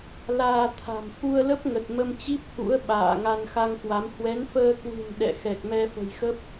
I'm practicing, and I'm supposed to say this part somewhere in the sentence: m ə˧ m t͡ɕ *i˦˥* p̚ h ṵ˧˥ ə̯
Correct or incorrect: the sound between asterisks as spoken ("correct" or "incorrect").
correct